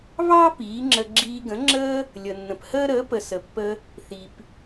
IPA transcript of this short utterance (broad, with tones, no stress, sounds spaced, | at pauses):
β ɑ˥ p iː˩˥ ŋ͡ǁ ə˧ ɡ͡ǁ iː˧ ɡ ə̃˩˥ ŋ͡ǁ əː˥ | lʲ ə˩ nː ə̃˩ p h əː˥ ɾ əː˩˥ p ə˩ s ə˩ pː ə˧ | θ i˩ p